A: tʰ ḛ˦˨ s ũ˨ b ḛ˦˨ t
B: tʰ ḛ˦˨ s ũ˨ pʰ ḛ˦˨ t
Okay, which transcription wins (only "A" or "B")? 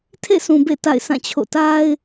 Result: A